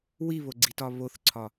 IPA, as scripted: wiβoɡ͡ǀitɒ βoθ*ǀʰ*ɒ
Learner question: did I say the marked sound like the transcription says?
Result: yes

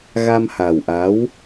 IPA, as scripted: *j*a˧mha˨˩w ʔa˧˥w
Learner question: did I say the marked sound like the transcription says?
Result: no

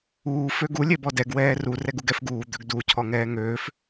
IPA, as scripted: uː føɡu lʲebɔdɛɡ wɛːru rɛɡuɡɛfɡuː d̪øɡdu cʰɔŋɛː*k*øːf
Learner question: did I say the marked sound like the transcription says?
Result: no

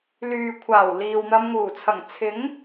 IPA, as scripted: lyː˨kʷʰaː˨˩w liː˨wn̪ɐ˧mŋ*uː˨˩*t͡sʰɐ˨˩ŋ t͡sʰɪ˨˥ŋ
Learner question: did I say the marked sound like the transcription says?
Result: yes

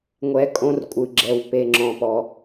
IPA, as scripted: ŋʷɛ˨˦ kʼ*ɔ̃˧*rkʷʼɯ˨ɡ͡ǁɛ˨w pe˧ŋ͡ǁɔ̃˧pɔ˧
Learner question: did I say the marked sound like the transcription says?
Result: no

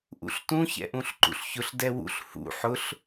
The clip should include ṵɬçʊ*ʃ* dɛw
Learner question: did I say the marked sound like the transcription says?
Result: no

